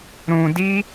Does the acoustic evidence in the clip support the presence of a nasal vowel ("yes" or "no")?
yes